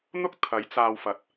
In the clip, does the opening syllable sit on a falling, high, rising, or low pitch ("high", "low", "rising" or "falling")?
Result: high